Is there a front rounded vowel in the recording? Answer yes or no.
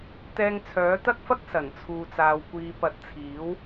yes